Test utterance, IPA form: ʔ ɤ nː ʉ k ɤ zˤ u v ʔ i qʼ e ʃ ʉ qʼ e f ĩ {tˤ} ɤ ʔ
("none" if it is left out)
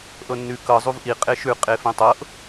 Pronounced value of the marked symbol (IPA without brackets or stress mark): tˤ